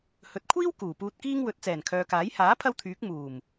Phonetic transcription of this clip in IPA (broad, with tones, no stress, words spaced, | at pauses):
hɵ˨t̚kʷʰiː˥w kuː˨˩puː˧t̚kiː˥ŋ wɵ˨˥t̚ t͡sɛː˨˩nkʰœː˨kaː˨˥j haː˨˥ pʰɐ˥wt̪ʰyː˨˥k̚ muː˨˩m